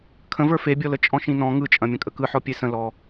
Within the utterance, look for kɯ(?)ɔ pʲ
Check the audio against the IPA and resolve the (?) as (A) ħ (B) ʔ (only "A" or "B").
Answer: A